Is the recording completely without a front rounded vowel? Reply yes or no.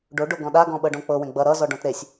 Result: yes